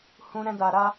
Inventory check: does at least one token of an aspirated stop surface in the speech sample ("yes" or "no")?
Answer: no